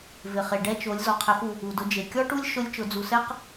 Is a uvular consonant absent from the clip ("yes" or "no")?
no